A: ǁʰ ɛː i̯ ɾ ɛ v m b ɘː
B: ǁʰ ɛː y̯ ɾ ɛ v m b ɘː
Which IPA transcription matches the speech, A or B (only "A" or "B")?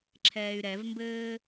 B